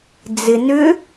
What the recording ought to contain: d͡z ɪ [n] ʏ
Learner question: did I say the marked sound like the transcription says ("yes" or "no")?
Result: yes